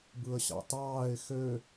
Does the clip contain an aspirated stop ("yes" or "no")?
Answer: no